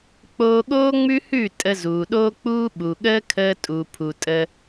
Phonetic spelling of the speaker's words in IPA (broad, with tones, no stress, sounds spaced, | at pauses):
k͡p oː˧ ɠ oː˦ ŋ͡m ʉ˦ h ʉ˦˨ tʼ ə˧ z uː˨ ɗ oː˦ k͡p uː˦ ɓ u˨ ɠ əː˦ kʰ əː˧ tʼ u˨ pʰ u˨ tʼ ə˧